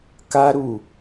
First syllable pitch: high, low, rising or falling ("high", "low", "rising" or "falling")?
high